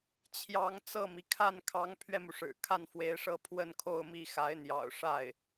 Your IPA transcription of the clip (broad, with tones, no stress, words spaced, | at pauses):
t͡ɕʰjɑ˧˥ŋ t͡sɤ˥˩mi˩ kʰa˥˩n kʰɑ˧˥ŋpʰɥɛ˧mu˩ʂɻ̩˨˩ kʰa˥˩nfwe˧˥ɪ̯ʂɤ˥˧ pʰwə˥˧nkʰo˥˧ʊ̯mi˥˩ xa˧˥ɪ̯n̪jɑ̰˨˩ʊ̯ ʂa˥˩ɪ̯